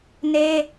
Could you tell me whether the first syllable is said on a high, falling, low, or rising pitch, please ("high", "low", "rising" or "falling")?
high